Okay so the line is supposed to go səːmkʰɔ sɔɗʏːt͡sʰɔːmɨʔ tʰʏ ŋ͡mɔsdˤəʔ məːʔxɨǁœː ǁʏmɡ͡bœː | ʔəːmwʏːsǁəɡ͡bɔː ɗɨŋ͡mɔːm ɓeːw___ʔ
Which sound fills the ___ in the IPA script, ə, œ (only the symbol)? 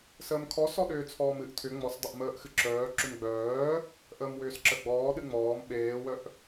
œ